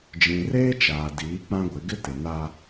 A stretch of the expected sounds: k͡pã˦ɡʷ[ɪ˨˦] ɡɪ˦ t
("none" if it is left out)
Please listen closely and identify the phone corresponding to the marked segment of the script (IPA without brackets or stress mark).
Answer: ɪ˨˦